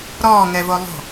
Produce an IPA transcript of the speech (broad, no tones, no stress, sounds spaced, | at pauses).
ɾ ɔː ŋ ɛ v o lˠ o̤